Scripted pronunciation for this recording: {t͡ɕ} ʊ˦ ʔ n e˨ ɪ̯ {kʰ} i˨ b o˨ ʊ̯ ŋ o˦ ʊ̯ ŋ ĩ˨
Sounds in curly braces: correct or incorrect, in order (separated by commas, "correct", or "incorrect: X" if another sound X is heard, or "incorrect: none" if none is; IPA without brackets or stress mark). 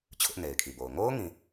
incorrect: t͡ɕʰ, correct